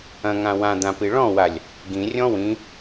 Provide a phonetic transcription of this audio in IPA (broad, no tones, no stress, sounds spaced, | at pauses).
ɐ̃ ŋ ã w ã d̪ ã p i ɭ ɔ̃ w a lʲ | ɡ ĩ rʲ ɔ̃ w ĩ